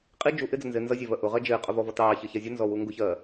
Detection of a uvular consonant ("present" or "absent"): present